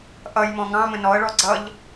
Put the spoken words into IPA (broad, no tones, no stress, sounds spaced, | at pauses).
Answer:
ʔ ʌ j m ɔ̃ ŋ ɑ̃ m ə̃ n ɔ ə̯ ɭ ɔ ɡ͡ǀ ʌ ʎ